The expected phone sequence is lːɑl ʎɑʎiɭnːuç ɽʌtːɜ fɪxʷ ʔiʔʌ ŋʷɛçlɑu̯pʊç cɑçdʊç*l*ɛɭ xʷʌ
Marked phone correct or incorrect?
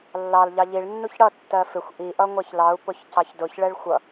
incorrect